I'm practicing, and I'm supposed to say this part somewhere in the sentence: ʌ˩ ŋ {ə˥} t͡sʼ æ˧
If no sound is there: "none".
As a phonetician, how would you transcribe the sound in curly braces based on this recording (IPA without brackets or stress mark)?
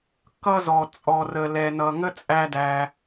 ə˥